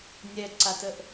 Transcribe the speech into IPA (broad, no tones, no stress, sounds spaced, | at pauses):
nʲ ɛ ǀ a t ə ʔ